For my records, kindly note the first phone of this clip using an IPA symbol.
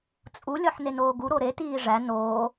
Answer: t͡sʼ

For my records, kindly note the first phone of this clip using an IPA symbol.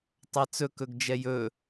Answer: tˤ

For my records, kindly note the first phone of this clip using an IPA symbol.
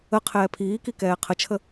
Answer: ə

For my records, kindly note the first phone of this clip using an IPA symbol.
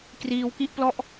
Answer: k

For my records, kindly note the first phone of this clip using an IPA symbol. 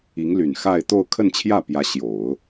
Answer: i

